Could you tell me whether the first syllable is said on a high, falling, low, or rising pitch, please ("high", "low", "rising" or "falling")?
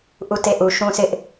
falling